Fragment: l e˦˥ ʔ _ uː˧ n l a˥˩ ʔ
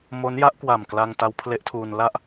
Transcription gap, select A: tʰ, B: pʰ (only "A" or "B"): A